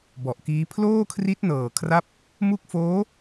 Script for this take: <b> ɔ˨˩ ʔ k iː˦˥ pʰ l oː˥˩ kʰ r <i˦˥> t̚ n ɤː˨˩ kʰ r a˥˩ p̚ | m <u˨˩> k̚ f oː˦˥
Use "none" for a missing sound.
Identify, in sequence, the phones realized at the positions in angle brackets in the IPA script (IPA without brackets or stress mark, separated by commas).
b, i˦˥, u˦˥